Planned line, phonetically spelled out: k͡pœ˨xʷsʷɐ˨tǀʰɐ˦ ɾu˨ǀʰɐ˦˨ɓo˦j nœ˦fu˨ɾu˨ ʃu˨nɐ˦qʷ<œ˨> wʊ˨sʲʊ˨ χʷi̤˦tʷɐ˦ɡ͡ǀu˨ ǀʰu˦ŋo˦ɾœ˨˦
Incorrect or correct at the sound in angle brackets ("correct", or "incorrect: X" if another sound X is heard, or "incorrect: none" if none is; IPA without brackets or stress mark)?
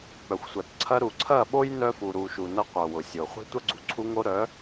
correct